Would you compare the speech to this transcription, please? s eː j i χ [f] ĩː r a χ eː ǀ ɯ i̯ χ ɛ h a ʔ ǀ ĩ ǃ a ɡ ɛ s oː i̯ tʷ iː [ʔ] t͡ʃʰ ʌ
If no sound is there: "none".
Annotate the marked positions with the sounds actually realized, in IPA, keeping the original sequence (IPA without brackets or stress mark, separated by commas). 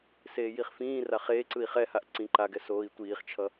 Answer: f, χ